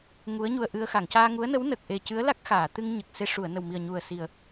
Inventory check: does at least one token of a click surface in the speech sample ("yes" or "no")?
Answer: no